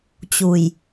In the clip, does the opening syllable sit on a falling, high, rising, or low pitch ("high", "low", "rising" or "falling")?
low